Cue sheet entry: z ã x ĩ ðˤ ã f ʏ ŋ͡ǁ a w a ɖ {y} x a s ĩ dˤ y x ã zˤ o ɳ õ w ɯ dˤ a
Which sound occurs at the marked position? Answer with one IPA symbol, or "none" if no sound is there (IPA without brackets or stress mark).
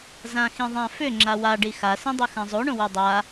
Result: i